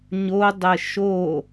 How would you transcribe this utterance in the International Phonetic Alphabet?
ɲ o dˤ ə ʃ o

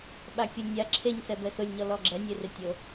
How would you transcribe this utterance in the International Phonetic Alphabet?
ɓ a kʲ ʊ lʲ nʲ a ǁʰ e ɲ s ɛ b ɛ s ʊ lʲ ɲ ɔ l ɔ ɡ͡ǁ ɛ nʲ e r ɪ tʲ o

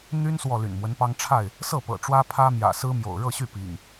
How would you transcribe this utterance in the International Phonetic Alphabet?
n̪ y˦ n s w ɔ˨ l y̰˨˩ n m w ə˦ n p ɑ˦ ŋ ʈ͡ʂʰ a˥˨ ɪ̯ | s ɤ˥˨ p ɤ̰˨˩ ʈ͡ʂ w ä˦ pʰ ä˦ m j ä̰˨˩ s ɹ̩˦ m j o̰˨˩ ʊ̯ ɻ ɤ˥˨ ɕ y˥˨ p ḭ˨˩ ŋ

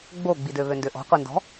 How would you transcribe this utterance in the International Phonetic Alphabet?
ɡ͡b o ɡ͡b i d ø β ø n d ø ʔ ɔ̤ qʷ ɛ n d ɔ̤

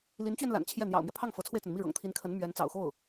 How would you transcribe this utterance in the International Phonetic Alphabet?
l i˧˥ n t͡ɕ ɥ ɛ˧ n l a̰˨˩ n t͡ɕʰ j ɛ˥˩ n̪ j ɑ̰˨˩ ʊ̯ m j ɛ˦ pʰ ɑ˥˩ ŋ f ɤ˧˥ t͡sʰ w e˧ ɪ̯ t͡s ə˩ n m i˥˩ ɻ ɤ̰˨˩ ŋ t̪ʰ i˧˥ n kʰ ə˧˥ n m ɥ ɛ˧˥ n t͡s ɑ̰˨˩ ʊ̯ x o˥˩ ʊ̯

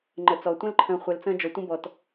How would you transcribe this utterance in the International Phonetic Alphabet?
ŋ͡ǃ ə˩ t͡s ɔ˩ tʷ ə̃˧ l ǃʰ ə̃ː˩ χʷ ɛ˩ l t͡s ə̃ː˧ d͡ʒ ɔ˩ tʷ ə̃˧ b ɔ˩ t

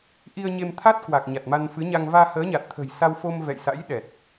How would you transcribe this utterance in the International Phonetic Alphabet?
ʔ i˧ ə̯ ɲ e˧ m t̪ʰ a˦˥ t̚ k w a˨˩ k̚ ɲ a˨˩ t̚ m a˧ n f ɨ˨˦ ɲ a˧ ŋ v aː˧ h əː˨˦ ɲ a˨˩ t̚ t̪ʰ ə̤˨˩ j s a˧ w f o˧ m v ɛ̰˧˨ j s a̰˧˥ j ɗ ɛ˨˩ t̚

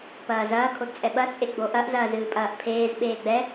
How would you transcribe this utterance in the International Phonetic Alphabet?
p ɐː z ɐː kʰ o d t͡sʼ ɛ ɓ ɐ t͡sʼ e ɡ͡b o ʔ ɐ ʔ z ɐː z ɨː pʼ ɐː ʔ pʰ eː z ɓ eː ɡ͡b ɛ

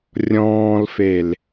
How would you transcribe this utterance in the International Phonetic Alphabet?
rʲ ɔ̃ː l f e l

